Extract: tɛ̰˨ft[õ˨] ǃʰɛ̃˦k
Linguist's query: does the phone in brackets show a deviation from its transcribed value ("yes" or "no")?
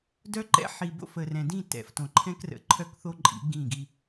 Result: no